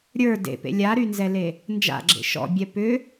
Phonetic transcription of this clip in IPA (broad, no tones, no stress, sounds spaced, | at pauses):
ɾʲ ə˞ d ḛ p ḛ lʲ a ɾ y n z ɛ l e | n d͡ʒ a̰ ɡ͡ǁ ḛ ʃ ɔ̰ bʲ ɛ p ʏ